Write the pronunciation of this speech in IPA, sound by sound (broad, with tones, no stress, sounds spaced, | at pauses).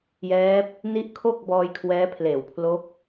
j ɛː˦˥ p̚ | n i˦˥ ʔ kʰ o˥˩ k̚ b ɔː˧ j kʰ w ɛː˦˥ pʰ l eː˨˩ w pʰ l o˦˥ k̚